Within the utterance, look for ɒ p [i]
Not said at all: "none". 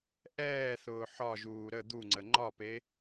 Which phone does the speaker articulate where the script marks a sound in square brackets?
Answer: e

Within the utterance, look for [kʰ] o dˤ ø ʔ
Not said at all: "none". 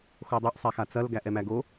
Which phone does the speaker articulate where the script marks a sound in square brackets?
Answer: x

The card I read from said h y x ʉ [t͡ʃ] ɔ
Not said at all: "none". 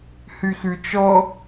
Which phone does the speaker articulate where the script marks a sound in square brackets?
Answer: t͡ʃ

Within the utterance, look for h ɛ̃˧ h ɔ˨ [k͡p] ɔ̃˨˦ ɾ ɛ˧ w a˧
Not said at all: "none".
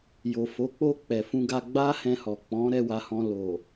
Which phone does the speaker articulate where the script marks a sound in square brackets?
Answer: k͡p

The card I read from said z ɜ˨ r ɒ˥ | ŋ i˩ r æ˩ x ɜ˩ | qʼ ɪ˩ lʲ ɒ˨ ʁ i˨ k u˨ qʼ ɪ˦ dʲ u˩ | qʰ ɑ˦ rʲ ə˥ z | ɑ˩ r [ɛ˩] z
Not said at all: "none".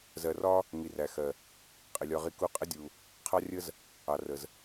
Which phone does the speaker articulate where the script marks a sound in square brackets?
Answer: ə˩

